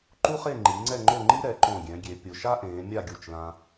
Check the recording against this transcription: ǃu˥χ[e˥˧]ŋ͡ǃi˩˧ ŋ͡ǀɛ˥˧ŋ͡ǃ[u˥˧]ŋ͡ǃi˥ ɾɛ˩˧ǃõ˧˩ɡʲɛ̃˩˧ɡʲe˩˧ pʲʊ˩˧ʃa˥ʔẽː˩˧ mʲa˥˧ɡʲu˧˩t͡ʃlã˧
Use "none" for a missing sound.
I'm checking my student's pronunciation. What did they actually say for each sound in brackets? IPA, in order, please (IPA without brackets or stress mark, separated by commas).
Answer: e˥˧, o˥˧